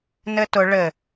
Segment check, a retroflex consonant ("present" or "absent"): present